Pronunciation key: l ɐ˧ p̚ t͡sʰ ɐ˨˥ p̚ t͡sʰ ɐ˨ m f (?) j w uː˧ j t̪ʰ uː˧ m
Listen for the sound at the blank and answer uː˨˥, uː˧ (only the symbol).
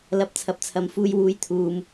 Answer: uː˧